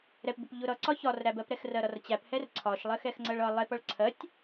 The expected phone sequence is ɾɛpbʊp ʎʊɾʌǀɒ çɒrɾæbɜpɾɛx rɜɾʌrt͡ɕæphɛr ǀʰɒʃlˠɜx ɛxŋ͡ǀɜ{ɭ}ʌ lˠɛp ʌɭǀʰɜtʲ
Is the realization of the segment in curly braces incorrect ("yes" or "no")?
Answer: no